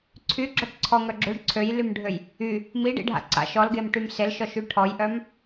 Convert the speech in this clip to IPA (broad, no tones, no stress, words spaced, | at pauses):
ǀʰyɡ͡ǁɔʈ ǀʰɔŋœ ɡ͡ǁøɖ ǀʰøjlymɖʱøj | y | miɖḭɖʱa̰ ǀa̰ʃ ɔlɡemʈym selʃɔʃy ʈʰɔjʔœm